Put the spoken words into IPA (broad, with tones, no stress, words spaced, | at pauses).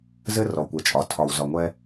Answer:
zɘ˦ rɔ˨kʷɛ˨t͡ʃʼɒ˨ tʰɒ˨wzɒ˨ŋʷɛ˦